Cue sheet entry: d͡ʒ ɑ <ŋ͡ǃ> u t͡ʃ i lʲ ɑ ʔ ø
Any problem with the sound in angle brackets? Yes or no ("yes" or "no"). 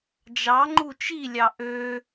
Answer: no